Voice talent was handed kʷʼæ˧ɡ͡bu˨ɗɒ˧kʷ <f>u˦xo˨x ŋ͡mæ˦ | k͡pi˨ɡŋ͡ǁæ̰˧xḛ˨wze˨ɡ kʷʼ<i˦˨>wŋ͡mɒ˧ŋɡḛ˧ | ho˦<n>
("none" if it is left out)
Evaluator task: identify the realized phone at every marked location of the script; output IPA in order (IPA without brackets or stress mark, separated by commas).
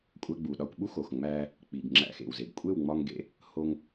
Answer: ɓ, e˦˨, ŋ